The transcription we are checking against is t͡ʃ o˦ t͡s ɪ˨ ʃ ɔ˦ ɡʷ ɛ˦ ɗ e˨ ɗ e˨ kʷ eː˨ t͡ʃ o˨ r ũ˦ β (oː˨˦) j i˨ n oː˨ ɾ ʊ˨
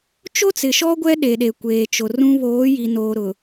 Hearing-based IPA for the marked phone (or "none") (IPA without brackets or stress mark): oː˨˦